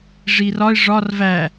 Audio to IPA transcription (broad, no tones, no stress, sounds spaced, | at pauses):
ʐ i r ɒ ɪ̯ ʐ ɒ r v æ